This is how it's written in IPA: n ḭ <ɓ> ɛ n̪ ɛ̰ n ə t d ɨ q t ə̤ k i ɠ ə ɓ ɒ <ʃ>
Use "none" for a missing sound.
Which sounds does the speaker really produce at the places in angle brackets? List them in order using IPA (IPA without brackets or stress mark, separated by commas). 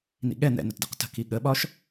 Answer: ɠ, ʃ